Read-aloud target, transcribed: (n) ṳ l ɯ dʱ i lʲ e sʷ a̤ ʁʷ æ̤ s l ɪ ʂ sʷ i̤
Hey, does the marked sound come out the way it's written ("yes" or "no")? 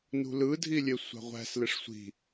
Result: yes